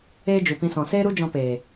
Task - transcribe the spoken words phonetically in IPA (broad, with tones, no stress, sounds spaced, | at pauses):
eː˦ d͡ʒ u˨ p ĩ˧ s ɔ̃˨ s eː˦ ɾ u˦ d͡ʒ ɔ̃˧ p eː˨